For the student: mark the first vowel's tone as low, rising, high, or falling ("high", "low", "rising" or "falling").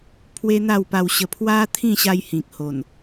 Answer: high